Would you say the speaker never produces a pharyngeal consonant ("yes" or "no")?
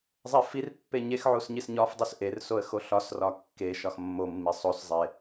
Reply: no